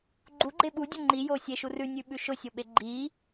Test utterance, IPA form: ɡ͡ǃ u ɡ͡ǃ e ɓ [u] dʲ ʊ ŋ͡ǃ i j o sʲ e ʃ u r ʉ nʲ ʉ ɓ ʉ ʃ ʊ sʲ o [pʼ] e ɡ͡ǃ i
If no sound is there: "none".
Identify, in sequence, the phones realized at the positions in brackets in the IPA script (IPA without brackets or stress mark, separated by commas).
u, ɓ